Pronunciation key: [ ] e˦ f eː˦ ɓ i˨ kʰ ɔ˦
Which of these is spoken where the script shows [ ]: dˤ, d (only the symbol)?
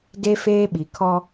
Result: d